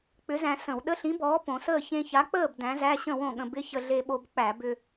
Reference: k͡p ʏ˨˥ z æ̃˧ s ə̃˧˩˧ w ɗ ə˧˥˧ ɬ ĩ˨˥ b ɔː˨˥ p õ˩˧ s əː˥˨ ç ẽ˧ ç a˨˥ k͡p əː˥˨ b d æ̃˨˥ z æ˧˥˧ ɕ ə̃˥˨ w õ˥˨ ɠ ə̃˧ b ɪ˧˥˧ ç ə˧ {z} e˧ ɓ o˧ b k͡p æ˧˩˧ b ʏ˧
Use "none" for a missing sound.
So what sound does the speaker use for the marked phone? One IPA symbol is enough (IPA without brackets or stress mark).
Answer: ɮ